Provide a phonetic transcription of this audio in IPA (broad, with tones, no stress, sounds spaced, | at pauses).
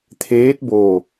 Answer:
t̪ʰ eː˧˥ t̚ b oː˧˩